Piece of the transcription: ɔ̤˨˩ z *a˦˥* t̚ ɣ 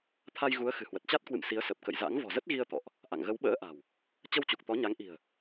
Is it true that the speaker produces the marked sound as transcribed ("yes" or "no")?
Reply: no